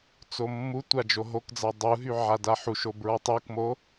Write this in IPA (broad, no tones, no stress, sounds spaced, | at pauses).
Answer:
t͡s o mː u tʷ a d͡ʒ o ɦ o k d͡z a dˤ u ɦ y ʕ a d a ħ u ʃ o b ɹ ɔ tˤ u k m o